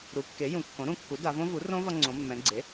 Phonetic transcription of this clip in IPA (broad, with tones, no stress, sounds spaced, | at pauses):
ɾ u˩˥ kː e˩˥ j ũ˩˧ kː õ˩˥ ɾ ũ˧ kː u˩˥ d a˩˧ v õ˦˥ v u˩˥ r õ˦˥ v ʌ˧ ŋ͡ǀ õ˩˧ mː ɛ̃˩˧ ɡ͡ǀ e˩˥